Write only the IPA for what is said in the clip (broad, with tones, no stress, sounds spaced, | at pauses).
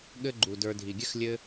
ɠ ɘ˦ ɡ͡ǃ u˩ d ə˞˨ dʱ i˩ ɡʲ ɘ˥ x lʲ ɘ˥